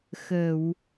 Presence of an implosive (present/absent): absent